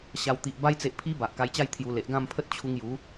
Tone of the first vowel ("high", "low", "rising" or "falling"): low